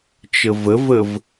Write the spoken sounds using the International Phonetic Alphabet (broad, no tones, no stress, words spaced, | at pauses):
t͡ʃəvəvəv